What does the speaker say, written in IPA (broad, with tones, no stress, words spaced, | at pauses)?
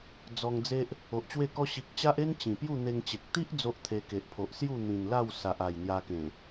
d͡zɔ˧ŋd͡ze˦ʔ | o˨ʔt͡ɕwe˥˧kɔ˦ ɕi˨k̚t͡ɕa˦ʔ e˦n t͡ɕĩ˨˩pju˥˧n̪e˧ŋt͡ɕe˨k̚ t̪i˦ʔ d͡zo˦ʔt̪ʰe˧ke˨ʔpʰo˨ʔ sju˥˧n̪ĩ˨˩nla˥˧w sa˨ʔa˨˩jn̪ja˧kẽ˨˩